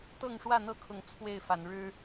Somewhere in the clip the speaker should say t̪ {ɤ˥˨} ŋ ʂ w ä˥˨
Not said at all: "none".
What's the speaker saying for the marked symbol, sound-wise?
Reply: ɤ˥˨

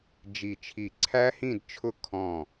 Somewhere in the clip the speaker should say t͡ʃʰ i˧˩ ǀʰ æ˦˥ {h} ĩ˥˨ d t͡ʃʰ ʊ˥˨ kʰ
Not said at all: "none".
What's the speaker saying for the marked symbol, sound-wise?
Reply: h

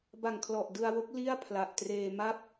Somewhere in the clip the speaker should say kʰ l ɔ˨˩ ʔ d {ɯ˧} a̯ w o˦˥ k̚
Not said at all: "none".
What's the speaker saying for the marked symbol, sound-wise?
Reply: ɯ˧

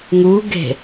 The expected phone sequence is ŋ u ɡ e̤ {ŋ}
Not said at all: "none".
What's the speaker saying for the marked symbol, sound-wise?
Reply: none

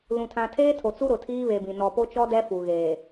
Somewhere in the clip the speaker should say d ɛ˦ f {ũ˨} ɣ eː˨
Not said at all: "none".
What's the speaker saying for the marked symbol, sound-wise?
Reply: u˨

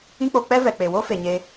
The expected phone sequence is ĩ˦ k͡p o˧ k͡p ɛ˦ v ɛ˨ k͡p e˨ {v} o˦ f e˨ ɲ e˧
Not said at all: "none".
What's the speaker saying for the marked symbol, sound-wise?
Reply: w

